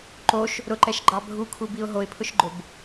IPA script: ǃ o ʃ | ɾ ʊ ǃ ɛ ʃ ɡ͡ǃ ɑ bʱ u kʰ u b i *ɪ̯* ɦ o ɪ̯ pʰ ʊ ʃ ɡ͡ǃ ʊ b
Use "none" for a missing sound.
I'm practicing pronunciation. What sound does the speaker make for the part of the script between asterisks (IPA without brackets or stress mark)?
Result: ʊ̯